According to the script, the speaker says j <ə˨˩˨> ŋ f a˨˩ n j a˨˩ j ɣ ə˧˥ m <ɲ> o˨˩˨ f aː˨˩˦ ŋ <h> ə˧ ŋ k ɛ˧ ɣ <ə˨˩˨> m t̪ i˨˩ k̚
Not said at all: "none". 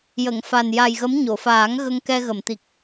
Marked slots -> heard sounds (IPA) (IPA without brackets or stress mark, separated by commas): ə˨˩˨, ɲ, ɣ, ə˨˩˨